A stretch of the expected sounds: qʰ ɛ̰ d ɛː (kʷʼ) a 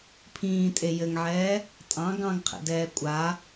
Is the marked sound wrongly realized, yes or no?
no